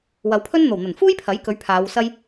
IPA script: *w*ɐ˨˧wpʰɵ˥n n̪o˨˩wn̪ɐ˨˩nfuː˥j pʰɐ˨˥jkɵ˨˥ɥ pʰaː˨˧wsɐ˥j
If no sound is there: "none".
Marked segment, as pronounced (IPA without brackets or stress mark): w